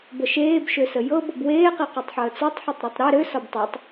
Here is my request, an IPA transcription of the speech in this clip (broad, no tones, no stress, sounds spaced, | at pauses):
b ə ʃ eː b ʃ ø s ə j ɤ b ɤ b w eː q i q ɤ tˤ ħ əː t͡s ɒ tˤ ħ i tˤ ɾ ɒ tˤ ɾ e ɾ ø s ɒ b tˤ ø tˤ